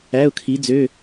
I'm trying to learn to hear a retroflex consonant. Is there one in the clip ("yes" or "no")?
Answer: no